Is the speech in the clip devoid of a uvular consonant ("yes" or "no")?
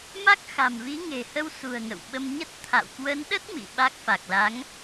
yes